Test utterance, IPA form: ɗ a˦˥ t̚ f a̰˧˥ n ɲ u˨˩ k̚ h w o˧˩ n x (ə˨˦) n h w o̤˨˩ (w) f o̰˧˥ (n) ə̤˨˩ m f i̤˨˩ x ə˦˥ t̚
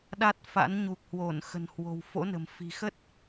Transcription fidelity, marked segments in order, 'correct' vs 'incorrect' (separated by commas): incorrect, correct, correct